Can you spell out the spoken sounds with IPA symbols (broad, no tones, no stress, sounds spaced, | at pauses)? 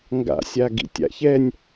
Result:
ŋ ɡ a̰ sʲ a ɡ ḭ tʲ a̰ ç ɛ nʲ